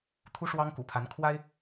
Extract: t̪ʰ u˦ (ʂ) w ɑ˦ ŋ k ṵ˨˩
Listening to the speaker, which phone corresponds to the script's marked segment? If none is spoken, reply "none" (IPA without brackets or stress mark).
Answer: ʂ